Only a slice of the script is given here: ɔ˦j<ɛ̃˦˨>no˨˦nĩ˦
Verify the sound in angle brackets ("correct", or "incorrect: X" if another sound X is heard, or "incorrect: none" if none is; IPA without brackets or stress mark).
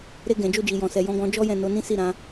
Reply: correct